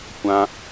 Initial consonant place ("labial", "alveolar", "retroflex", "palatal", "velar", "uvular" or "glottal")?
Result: velar